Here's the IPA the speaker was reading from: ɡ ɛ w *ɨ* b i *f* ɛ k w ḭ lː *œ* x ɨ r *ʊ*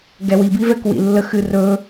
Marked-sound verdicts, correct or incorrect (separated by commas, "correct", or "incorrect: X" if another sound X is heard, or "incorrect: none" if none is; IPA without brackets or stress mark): incorrect: i, incorrect: v, incorrect: ə, incorrect: ɵ